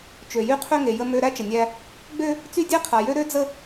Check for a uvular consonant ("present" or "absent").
present